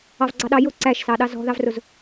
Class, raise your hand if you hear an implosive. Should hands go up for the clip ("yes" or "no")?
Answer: yes